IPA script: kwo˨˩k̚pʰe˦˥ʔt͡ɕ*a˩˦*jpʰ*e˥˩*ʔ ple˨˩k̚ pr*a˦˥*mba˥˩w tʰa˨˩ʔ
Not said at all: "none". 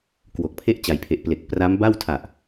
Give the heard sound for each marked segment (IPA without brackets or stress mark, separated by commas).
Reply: a˩˦, e˨˩, a˦˥